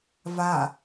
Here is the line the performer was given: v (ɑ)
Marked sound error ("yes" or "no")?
yes